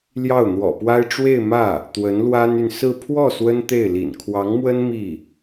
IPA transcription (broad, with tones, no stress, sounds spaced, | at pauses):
l j ɑ˥˩ ʊ̯ n̪ w ɔ̰˨˩ p w a˥ ɪ̯ ʈ͡ʂ w e˥˧ ɪ̯ m ä˥˩ | t̪ w ə˧˥ n l w a˥ n y˨ n s ɹ̩˥˧ pʰ w ɔ˥˩ s w ə˥ n t̪ e˥˩ ɪ̯ l ḭ˨˩ n kʰ w ɑ˧˥ ŋ m w ə˥ n m i˥˩